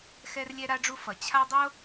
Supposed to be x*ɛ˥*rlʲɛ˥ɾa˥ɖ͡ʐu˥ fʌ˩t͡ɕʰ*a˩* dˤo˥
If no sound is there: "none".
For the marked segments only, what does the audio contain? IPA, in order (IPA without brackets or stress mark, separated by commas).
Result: ɛ˥, a˥